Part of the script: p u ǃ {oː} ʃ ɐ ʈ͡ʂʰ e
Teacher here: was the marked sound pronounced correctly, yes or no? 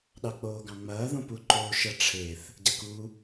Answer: yes